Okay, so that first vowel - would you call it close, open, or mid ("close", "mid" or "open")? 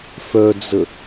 mid